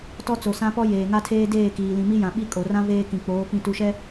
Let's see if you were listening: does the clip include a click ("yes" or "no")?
no